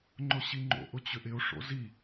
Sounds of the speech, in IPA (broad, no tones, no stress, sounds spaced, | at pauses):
ŋ͡ǃ ʊ ɕ i ŋ͡ǃ o̰ ʔ ʊ t͡ɕ ʏ ʔ ɪ o̯ ʂ o̰ z i